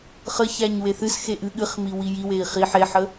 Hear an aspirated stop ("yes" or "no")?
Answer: no